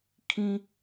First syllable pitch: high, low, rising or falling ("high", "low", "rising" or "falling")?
low